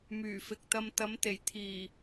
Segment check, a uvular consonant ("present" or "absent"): absent